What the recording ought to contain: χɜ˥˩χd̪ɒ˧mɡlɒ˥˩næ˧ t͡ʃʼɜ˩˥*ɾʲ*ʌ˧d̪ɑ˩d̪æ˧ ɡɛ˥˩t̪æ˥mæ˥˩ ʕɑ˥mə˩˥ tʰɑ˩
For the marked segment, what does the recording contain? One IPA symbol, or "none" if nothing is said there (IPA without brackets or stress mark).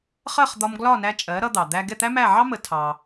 ɾ